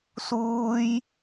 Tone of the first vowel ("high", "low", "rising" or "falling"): high